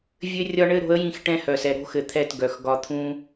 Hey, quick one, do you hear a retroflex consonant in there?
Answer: yes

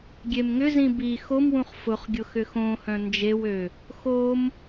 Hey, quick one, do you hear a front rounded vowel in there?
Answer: yes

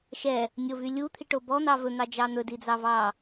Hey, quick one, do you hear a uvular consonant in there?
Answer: no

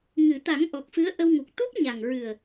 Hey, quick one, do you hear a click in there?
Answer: no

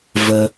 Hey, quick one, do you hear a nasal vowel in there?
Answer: no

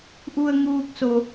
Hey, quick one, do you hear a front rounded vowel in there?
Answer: no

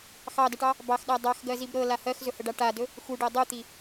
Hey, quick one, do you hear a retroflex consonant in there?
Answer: yes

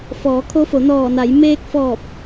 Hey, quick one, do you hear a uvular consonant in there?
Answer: no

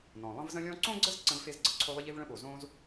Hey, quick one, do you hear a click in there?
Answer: yes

